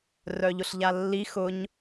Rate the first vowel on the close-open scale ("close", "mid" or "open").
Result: mid